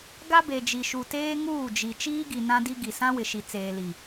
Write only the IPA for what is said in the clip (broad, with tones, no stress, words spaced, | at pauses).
ɡa˦be˨d͡ʒi˨ʃu˨ teː˦ŋuː˦˨d͡ʒi˨ t͡ʃiː˦ɡi˨ nã˦di˦ ɡi˨ sã˦wɪ˨ʃi˨ t͡seː˨li˨